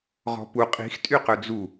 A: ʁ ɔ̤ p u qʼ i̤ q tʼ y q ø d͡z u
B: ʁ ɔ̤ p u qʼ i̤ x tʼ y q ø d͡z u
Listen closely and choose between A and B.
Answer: B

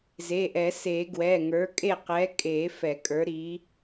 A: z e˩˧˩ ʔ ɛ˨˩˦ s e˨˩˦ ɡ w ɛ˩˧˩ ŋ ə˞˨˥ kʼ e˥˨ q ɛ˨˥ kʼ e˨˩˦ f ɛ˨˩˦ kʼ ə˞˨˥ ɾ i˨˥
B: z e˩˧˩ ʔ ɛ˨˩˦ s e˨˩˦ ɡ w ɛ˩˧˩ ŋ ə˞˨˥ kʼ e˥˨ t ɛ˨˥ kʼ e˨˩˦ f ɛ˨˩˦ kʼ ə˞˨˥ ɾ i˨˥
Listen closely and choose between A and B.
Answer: A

